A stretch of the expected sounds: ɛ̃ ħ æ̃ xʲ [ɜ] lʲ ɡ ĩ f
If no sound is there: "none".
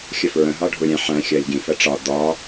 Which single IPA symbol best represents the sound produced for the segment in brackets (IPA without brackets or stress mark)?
ɜ